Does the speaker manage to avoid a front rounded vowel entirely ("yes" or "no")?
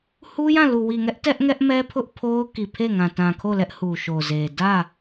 yes